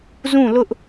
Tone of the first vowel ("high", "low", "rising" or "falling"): falling